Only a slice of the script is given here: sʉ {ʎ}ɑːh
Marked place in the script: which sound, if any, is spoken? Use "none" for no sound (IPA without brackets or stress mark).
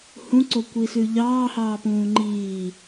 ʎ